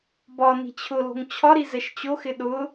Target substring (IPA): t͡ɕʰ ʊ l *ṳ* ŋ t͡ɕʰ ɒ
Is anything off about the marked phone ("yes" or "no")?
yes